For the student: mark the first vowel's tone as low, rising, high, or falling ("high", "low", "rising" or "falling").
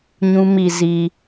high